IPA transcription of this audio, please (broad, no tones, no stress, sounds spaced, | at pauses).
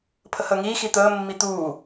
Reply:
pʰ ə h əː ŋ iː x i t̪ əː mː i t̪ uː